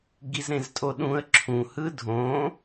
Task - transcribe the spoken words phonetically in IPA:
ɡizɾẽztʼoɗũə̯ ǁʰũhɯ dʱõ

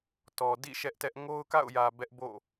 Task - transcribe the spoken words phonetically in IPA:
tɔ˨dḭ˦˨ ʃɛ˦ʔtɛ˦ʔ ŋo˦ʊ̯ka̰˦˨ʊ̯jä˨ bɛ˦ʔbo̰˦˨

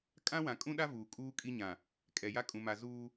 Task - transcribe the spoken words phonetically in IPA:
kʼã˦wã˨kʼũ˦ɗa˦ vuː˨ kʼuː˦kʼi˦ɲã˨ | kʼɛ˨ja˦ kʼũ˨ma˨ zuː˦

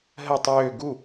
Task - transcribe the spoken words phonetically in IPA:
ɦə tˤøː ɡu

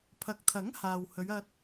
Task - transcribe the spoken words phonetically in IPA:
pʰɐ˨˥k̚t̪ʰɐ˨˥ŋ haː˨whɵ˨˧ɥ ɐ˧t̚

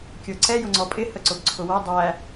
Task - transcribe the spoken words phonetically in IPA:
kʲə˞ǀɛ jʊŋ͡ǀɔpʼɪ həǀʊbǀʰʊwʌ dˤæ

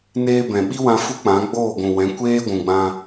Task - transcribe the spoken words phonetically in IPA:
neː˧bɛ̃˨ ɓi˦wã˧ fu˦k͡pã˨˦ ɡ͡boː˦˨ɡʷũ˨wɛ̃˨˦ kʷeː˦ɡʷũ˨ɡ͡bã˧

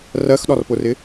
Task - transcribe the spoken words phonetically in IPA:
rɜxɗɒrpʊrɪ

